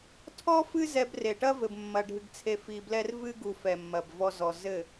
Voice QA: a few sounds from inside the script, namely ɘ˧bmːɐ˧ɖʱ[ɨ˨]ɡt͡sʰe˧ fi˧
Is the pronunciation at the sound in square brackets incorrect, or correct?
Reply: incorrect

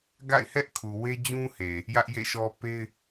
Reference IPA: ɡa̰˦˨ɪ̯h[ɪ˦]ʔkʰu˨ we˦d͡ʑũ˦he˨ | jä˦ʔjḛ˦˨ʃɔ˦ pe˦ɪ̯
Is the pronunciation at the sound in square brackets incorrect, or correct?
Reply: incorrect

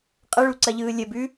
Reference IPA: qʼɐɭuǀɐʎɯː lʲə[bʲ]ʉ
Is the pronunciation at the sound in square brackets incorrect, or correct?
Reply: incorrect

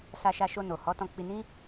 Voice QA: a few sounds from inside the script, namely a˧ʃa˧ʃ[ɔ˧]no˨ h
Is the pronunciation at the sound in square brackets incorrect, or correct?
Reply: incorrect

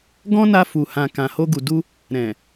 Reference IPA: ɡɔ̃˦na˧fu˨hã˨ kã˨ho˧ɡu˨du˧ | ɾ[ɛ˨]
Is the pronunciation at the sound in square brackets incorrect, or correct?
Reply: incorrect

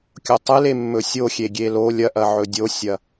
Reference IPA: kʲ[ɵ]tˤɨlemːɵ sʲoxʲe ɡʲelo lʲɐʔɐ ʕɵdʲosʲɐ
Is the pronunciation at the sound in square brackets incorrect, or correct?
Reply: incorrect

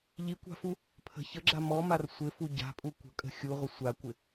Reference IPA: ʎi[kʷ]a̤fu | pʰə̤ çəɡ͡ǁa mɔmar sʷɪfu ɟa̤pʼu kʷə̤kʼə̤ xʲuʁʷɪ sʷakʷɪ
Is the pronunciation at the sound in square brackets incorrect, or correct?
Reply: correct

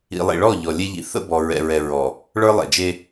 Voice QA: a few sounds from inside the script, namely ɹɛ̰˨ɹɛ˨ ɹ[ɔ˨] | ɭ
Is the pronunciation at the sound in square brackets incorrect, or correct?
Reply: correct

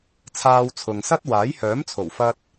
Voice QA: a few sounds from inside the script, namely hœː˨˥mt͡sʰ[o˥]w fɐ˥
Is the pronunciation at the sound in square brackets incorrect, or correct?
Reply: incorrect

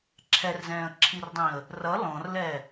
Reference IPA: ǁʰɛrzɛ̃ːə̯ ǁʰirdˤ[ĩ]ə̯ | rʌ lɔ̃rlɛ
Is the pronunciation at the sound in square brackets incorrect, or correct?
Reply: correct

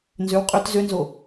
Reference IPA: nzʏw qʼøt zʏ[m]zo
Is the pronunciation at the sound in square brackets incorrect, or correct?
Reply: incorrect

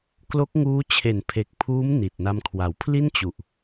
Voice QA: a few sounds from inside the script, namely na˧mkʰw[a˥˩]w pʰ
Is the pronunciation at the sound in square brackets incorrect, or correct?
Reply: incorrect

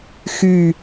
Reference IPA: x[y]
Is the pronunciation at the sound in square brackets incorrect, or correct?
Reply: correct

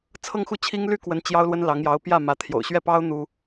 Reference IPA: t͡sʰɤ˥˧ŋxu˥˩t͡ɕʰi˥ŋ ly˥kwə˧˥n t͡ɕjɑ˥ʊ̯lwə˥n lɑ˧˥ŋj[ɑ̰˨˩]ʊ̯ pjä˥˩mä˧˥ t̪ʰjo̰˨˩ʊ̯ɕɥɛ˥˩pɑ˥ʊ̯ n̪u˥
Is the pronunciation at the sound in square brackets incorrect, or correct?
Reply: incorrect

